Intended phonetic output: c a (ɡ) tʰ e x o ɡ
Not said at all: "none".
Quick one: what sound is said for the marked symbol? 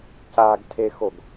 ɡ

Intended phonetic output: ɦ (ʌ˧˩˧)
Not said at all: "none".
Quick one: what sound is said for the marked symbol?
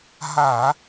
a˧˩˧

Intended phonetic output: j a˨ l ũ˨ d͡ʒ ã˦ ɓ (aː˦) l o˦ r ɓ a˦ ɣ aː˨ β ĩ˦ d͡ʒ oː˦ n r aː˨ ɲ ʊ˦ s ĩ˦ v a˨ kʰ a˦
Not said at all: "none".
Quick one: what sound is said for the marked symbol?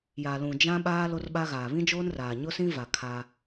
aː˦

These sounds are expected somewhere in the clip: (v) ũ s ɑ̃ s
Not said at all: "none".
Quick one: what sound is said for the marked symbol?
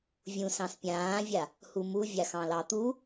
vʲ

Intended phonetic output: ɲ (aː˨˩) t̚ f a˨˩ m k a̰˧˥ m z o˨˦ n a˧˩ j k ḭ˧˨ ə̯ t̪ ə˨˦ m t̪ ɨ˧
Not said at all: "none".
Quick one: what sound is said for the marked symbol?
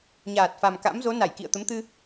aː˨˩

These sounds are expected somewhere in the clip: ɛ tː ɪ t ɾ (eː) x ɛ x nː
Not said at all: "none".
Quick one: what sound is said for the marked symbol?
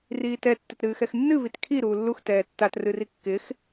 ɨː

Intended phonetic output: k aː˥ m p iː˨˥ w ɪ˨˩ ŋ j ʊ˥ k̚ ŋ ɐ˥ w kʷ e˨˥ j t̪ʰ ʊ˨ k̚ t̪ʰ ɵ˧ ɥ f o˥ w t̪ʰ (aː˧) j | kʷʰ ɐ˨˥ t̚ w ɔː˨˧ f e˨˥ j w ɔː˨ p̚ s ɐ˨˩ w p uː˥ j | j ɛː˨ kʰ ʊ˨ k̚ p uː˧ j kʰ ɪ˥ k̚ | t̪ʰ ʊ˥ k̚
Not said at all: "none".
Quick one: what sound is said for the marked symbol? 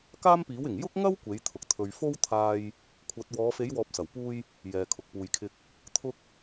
aː˧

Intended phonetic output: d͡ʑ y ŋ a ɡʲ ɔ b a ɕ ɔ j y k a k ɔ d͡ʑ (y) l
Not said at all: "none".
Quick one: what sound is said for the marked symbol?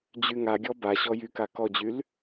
y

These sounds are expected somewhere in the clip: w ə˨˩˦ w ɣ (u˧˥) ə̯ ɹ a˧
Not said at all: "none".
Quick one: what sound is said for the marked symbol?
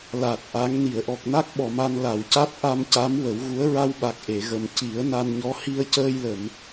u˧˥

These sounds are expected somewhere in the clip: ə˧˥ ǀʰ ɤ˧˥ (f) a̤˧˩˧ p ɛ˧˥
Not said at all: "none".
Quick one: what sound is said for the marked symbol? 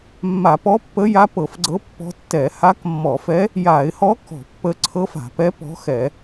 f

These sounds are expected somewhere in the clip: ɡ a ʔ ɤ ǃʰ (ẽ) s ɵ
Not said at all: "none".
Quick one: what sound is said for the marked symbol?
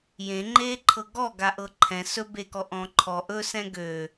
ɛ̃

